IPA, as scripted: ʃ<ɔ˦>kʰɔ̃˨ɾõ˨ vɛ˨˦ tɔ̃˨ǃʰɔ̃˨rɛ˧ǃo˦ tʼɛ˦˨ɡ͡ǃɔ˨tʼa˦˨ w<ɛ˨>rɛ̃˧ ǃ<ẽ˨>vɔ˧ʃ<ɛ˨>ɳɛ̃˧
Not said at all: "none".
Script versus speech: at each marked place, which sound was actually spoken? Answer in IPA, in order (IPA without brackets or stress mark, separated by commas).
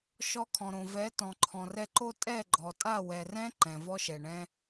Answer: ɔ˧, ɛ˨, ɛ̃˨, ɛ˨